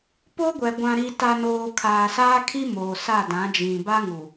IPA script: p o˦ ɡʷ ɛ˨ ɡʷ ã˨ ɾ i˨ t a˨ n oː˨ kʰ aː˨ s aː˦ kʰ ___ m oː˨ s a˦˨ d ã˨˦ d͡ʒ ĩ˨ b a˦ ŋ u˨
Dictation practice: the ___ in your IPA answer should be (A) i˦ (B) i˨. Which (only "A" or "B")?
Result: A